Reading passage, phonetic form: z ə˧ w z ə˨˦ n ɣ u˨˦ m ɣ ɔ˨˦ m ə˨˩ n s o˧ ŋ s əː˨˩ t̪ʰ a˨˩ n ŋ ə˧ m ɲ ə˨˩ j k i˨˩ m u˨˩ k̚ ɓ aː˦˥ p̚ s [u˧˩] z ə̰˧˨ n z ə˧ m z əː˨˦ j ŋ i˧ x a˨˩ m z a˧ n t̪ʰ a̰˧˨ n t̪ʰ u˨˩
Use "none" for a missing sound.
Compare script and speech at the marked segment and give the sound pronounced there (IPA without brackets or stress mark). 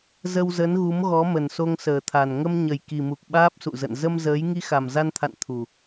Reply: ṵ˧˨